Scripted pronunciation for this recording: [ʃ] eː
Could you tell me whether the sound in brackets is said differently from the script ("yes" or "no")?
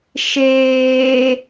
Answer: no